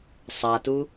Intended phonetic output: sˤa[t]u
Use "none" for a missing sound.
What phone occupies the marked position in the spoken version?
t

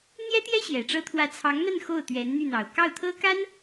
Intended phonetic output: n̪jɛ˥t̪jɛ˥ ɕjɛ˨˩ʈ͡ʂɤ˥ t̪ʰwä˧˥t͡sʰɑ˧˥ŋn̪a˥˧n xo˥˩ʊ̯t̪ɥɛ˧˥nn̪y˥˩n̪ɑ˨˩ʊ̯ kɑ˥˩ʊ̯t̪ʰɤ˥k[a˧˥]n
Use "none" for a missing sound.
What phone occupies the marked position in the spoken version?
a˥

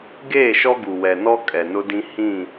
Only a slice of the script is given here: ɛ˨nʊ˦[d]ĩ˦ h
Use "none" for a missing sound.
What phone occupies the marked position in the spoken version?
d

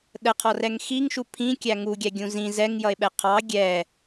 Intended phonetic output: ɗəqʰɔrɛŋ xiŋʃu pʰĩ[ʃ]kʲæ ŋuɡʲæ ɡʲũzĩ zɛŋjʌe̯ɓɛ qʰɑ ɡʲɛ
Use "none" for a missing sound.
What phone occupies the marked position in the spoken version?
none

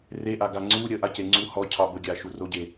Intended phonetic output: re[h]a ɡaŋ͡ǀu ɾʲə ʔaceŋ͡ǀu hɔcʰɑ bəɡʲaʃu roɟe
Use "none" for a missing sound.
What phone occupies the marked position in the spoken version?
ʔ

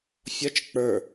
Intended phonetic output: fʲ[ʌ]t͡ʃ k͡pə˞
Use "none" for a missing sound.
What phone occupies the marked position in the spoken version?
ʌ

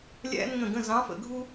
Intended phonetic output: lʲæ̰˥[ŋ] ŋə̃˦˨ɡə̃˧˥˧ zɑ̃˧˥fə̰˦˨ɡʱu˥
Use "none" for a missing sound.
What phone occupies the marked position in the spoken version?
n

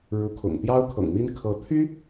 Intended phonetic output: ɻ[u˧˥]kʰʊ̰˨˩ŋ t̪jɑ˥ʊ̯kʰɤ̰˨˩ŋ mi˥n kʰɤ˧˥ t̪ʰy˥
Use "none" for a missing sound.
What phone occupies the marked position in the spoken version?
u˧˥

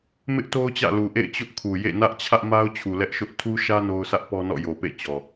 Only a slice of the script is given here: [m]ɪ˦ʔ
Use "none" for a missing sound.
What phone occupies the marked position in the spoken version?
m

